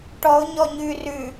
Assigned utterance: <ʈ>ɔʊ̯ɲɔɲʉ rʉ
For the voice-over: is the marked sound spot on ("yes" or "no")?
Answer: yes